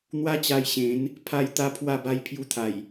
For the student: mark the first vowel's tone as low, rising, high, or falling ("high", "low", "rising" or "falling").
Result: high